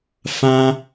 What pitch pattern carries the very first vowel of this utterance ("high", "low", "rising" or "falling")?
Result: high